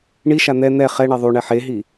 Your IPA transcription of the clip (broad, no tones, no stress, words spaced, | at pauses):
ɳiʃa n̪ɛ n̪ɛ χɛ ɳeðˤuɳɛ ħeɦi